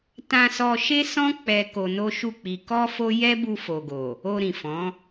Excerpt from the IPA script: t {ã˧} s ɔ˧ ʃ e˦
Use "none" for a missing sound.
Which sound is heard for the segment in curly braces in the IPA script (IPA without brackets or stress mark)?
ã˧